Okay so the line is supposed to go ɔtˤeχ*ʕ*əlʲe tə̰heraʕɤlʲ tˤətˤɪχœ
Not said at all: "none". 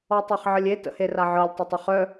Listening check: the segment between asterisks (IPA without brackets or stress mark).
ʕ